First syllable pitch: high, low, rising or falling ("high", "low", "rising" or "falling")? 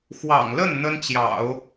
low